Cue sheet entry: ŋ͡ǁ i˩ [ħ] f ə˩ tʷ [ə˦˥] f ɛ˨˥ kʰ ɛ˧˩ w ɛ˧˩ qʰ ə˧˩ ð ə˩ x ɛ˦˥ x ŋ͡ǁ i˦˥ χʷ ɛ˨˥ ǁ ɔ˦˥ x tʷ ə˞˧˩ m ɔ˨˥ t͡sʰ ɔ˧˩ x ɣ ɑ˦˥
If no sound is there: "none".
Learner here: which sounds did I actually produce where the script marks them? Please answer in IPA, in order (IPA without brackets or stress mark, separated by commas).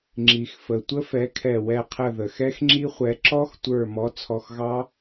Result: x, ə˦˥